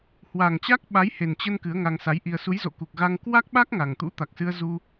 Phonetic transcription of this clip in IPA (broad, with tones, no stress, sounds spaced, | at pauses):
h w a˨˩ ŋ t͡ɕ a˦˥ k̚ ɓ a˨˦ j h e˨˩ n t͡ɕ ə˧ n k ɨ˨˦ ə̯ ŋ a˧ ŋ s a˨˦ j ʔ i˧ ə̯ s u˨˦ j z o̰˧˨ k u˨˩ k̚ ɣ a˧ ŋ k w a˦˥ k̚ ɓ a˦˥ k̚ ŋ a˨˩ ŋ t̪ ṵ˧˥ t̪ a˨˩ k̚ s ɨ˧ ə̯ z u˧